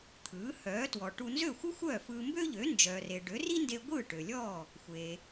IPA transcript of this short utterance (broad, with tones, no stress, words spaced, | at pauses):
t̪ʰɯː˩˥ hœː˩˥twɔ˩ʈu˧ nzø˥˩xʷɯ˥xʷœː˥˩fɯː˧ mbø˥ʎø˩˥nd͡ʒœː˩re˩ ɖø˩˥ri˥nde˧ ɡʷɯː˥˩ʈø˩lʲɔː˥˩ | xʷe˩